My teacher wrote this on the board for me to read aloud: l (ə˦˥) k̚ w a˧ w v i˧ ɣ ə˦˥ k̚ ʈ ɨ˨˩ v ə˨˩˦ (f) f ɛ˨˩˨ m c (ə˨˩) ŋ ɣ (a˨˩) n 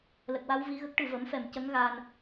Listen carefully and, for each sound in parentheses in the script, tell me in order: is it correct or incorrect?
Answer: incorrect, incorrect, incorrect, incorrect

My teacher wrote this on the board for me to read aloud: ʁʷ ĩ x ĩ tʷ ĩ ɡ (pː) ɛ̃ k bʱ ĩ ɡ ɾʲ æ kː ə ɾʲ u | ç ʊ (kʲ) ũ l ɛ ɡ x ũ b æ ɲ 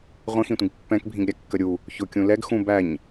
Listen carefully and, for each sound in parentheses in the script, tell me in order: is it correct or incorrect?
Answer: correct, correct

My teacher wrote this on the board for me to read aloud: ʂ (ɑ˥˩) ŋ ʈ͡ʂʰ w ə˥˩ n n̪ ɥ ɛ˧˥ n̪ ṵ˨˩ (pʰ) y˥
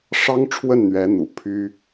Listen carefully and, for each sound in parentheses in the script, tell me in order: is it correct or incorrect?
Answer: incorrect, correct

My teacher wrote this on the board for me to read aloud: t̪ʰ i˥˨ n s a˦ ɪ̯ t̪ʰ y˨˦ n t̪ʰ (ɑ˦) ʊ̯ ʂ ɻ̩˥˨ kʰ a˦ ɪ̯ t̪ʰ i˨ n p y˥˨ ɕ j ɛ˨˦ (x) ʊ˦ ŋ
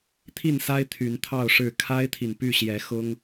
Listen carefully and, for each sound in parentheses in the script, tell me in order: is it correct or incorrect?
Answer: incorrect, correct

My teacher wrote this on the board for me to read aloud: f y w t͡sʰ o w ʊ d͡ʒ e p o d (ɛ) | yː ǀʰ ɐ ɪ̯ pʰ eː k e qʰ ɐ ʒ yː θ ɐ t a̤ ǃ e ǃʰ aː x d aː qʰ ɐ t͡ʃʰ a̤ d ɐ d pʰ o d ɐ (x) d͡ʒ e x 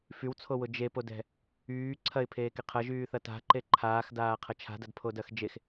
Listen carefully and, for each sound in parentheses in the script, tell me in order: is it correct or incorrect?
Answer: incorrect, correct

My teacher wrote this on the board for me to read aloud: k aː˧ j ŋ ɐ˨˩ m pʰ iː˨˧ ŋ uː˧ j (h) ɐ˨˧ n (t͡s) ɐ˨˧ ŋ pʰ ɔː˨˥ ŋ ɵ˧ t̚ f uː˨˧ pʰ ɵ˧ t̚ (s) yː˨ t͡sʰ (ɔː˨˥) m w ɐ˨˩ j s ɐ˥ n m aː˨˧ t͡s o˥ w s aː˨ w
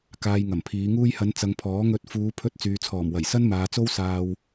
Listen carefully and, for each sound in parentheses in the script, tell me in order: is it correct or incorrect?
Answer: correct, correct, incorrect, incorrect

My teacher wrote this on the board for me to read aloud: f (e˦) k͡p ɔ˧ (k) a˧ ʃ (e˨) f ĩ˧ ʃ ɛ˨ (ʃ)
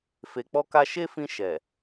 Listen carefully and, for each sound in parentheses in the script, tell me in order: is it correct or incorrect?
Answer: incorrect, correct, incorrect, incorrect

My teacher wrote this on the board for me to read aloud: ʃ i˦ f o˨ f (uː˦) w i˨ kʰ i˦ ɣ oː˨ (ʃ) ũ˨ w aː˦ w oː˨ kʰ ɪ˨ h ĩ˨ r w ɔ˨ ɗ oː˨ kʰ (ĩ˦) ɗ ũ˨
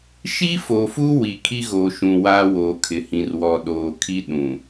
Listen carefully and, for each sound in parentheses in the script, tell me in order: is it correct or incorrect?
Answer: correct, correct, incorrect

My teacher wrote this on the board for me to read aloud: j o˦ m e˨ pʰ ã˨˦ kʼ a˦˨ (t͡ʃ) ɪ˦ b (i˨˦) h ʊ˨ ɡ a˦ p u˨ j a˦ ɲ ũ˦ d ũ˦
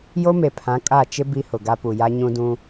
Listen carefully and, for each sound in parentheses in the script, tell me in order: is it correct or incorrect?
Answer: correct, incorrect

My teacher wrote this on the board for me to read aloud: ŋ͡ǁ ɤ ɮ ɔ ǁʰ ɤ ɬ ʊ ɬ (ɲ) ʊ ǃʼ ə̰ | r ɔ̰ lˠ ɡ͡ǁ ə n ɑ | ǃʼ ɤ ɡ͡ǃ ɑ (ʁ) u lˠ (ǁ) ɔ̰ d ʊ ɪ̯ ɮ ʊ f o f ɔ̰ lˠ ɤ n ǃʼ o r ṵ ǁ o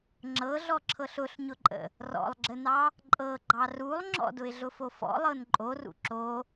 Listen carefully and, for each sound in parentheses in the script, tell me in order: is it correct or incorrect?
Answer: correct, incorrect, incorrect

